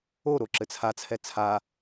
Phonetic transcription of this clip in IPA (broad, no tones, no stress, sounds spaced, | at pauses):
o ɾ o ǁ ɘ t͡sʰ a t͡sʰ ɛ t͡sʰ a